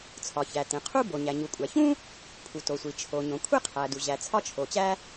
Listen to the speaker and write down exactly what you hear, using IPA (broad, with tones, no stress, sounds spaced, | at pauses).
t͡sʰ ɒ˩ ç æ˩ t ẽ˩ qʰ u˥ b o˩ ɲ æ˩ ɲ u˩ kʷʼ æ˩ ç ũ˥ | pʰ u˩ t o˩ sʷ i˩ t͡ʃʰ o˩ ɲ õ˩ kʷʰ e˥ qʰ æ˩ d u˩ ʑ æ˩ t͡sʰ ɒ˥ t͡ʃʰ o˩ t͡ɕ æ˥